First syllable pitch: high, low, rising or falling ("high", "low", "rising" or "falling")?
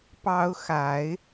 high